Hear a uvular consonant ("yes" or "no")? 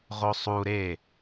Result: yes